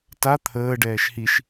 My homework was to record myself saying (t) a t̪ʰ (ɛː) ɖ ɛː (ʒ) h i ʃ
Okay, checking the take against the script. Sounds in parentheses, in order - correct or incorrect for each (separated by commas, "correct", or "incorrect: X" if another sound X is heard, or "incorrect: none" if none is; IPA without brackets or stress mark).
correct, incorrect: əː, incorrect: ʃ